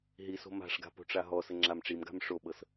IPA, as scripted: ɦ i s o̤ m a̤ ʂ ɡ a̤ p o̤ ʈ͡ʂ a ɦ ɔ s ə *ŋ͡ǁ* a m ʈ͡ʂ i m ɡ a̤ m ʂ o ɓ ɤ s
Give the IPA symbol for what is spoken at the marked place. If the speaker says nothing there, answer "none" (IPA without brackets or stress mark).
ŋ͡ǁ